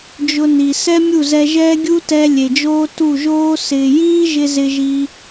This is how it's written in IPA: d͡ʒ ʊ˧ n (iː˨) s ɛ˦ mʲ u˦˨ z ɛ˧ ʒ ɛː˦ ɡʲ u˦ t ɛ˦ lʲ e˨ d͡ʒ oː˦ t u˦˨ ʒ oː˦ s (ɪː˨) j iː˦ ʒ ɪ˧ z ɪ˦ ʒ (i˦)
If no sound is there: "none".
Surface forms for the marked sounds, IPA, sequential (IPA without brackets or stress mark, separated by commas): i˨, ɪː˨, i˦